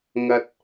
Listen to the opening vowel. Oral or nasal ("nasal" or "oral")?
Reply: oral